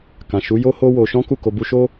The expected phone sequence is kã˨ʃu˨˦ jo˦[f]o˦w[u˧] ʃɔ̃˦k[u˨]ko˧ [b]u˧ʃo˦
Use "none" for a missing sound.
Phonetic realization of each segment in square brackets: h, o˧, u˦˨, b

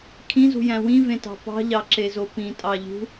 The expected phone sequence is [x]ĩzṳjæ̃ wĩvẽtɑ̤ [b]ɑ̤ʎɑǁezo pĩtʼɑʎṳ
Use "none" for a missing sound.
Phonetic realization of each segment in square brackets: kʰ, p

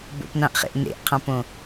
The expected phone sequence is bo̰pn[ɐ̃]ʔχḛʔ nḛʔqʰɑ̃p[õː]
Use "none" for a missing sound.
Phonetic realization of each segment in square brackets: ɑ̃, õ

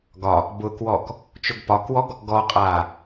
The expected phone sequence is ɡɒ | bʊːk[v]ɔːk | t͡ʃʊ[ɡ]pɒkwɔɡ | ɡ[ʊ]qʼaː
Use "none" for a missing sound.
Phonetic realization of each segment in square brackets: w, ɡ, ɔ

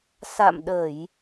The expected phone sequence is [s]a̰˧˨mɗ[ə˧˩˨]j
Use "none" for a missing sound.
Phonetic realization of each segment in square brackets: s, ə˧˩˨

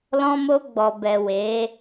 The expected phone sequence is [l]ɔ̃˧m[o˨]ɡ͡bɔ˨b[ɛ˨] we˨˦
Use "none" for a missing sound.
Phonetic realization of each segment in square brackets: l, o˧, ɛ˨

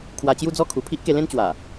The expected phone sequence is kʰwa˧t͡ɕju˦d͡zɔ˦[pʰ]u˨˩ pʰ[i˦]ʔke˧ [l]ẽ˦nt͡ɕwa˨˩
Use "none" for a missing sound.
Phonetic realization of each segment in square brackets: kʰ, i˦, l

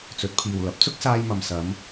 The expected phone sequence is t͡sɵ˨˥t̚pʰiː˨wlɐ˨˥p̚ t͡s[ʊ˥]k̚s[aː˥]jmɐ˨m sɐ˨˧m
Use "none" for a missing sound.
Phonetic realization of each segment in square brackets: ʊ˥, aː˧

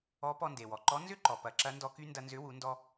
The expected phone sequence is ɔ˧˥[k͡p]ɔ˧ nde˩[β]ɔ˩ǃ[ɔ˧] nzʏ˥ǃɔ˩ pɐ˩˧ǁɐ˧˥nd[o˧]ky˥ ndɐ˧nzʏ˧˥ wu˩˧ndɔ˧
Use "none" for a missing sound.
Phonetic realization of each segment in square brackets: p, w, ɔ˧˥, ɔ˧

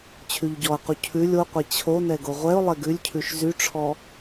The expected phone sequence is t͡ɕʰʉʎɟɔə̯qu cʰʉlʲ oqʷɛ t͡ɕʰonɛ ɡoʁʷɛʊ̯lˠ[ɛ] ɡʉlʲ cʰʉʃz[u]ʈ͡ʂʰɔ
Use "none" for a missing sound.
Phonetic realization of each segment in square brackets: ɛ, y

